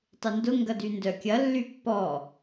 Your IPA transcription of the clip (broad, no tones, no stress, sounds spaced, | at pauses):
tˤ ɪ n d ʊ ŋ ɡ ɐ d y n d œ kʲ ɐ lː y pː ɔ